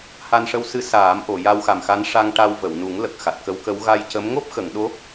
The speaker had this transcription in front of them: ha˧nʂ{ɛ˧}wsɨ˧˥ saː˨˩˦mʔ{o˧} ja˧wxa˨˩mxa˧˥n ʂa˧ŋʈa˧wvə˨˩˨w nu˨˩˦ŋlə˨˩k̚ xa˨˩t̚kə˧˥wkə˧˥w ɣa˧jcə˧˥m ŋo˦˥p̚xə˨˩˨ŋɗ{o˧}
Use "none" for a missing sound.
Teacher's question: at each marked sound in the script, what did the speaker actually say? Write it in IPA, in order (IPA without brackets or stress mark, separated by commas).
ə˧, o˨˩˨, o˧˥